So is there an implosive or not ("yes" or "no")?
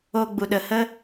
yes